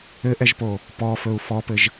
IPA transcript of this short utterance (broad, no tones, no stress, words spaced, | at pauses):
ɘʔɛʒpo | pɔfɵu̯ fɔpɘʒ